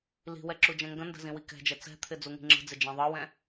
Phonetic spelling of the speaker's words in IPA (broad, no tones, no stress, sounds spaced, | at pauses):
l i̤ w ɛ ǁ u d͡ʒ ɛ̃ ŋ ɡ ə̃ n d ə̤ z ĩ w i k ɛ̤ d͡ʒ ɛ t͡s ɛ̤ t̪ʰ ɪ d͡z u ŋ i̤ ŋ͡ǁ ə̤ d͡z ɪ d͡ʒ ɛ̃ ðˤ ɤ w ɛ̃